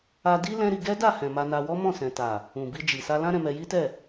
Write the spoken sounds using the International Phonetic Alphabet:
a˧ d i˦ l ɛ̃˦ ɾ i˧ ɡ ɛ˦ d a˦˨ h ɛ̃˨ m a˧ n a˧ w ɔ˦ m ɔ̃˦˨ s ɛ̃˨ t a˨ | ũ˨ b i˧ d͡ʒ i˨ s a˧ l ã˦ ɾ ɛ̃˧ m ɛ˧ j i˦ t ɛ˦˨

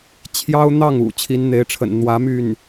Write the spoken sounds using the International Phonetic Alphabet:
t͡ɕʰ j ɑ˥ ʊ̯ n̪ ɑ˥˩ ŋ ṵ˨˩ t͡ɕʰ i˧˥ n n̪ e˧˥ ɪ̯ ʈ͡ʂʰ ə̰˨˩ n n̪ w ä˧˥ m y˥˩ n

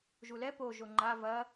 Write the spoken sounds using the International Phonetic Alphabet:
ʒ u l ɛ p o ʒ o ŋ͡ǃ a v ɐ

